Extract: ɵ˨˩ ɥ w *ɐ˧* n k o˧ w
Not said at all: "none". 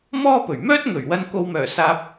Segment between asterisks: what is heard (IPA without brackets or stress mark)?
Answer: ɐ˧